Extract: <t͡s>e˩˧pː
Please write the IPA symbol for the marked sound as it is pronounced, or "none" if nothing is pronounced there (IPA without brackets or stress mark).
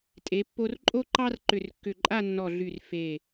tʼ